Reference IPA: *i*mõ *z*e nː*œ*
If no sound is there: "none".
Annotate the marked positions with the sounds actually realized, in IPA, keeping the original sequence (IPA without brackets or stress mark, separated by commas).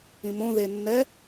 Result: ĩ, ð, ɛ